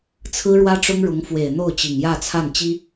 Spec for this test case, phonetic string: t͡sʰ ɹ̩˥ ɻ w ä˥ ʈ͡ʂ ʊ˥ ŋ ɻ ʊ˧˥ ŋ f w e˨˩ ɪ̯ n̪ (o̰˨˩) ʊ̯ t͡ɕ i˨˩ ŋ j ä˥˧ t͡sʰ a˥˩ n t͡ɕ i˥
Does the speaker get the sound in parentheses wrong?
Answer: yes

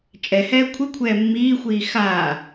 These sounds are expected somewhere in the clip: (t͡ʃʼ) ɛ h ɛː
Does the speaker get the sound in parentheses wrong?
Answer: no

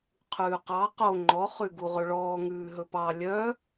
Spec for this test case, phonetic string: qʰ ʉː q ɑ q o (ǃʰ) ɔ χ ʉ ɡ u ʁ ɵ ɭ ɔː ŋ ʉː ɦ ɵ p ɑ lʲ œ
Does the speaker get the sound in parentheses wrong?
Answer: yes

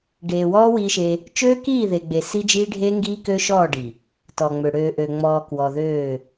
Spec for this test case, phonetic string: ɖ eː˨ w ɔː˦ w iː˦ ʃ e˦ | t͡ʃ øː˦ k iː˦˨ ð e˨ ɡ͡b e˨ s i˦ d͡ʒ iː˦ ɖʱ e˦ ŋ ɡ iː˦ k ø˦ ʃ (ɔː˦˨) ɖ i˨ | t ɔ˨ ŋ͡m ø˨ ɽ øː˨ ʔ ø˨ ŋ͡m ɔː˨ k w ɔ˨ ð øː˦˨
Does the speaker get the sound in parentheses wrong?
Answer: no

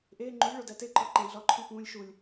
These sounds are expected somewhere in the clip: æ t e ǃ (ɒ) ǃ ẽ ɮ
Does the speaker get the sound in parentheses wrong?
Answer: no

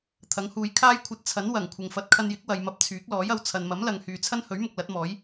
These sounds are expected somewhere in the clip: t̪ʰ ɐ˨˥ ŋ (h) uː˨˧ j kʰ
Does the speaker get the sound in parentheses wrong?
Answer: no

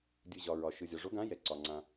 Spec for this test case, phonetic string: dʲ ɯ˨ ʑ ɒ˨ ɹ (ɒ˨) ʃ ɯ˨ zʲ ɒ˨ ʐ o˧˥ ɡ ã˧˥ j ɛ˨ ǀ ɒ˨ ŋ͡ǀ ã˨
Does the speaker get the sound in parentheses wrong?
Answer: no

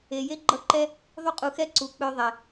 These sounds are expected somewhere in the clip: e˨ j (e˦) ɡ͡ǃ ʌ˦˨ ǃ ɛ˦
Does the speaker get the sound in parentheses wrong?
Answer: no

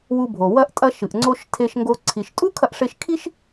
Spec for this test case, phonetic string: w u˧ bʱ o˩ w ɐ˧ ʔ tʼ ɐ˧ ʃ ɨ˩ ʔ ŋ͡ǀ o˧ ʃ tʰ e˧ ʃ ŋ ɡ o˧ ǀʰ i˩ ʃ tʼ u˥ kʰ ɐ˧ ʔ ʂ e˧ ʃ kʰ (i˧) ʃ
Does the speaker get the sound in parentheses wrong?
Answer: yes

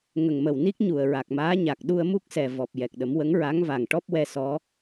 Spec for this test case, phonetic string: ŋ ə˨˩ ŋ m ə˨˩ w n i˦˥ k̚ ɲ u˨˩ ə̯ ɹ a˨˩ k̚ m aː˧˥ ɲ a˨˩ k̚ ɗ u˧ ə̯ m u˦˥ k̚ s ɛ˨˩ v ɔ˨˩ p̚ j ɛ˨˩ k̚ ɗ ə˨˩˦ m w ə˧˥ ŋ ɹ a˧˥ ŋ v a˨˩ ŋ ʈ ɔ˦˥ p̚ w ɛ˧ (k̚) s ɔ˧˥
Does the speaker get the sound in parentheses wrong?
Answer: yes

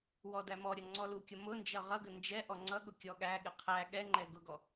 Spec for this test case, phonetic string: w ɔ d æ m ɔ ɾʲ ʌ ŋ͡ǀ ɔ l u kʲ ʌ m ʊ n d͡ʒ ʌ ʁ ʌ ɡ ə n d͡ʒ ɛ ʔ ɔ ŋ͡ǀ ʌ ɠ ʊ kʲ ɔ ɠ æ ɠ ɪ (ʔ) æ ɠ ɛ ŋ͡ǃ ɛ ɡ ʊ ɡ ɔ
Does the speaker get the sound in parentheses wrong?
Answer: yes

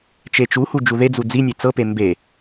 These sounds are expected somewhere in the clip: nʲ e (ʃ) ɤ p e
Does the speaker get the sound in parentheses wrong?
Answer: yes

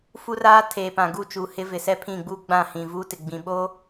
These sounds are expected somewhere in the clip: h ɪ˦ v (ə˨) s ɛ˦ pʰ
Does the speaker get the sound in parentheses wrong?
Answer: yes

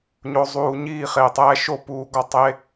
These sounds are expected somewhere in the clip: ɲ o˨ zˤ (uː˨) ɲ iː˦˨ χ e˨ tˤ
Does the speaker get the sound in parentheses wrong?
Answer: no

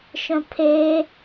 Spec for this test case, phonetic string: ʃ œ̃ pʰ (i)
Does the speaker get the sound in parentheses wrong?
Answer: yes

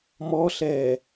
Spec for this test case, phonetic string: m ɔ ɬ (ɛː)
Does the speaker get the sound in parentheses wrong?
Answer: no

